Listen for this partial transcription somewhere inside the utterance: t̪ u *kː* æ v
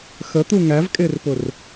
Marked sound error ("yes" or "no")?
yes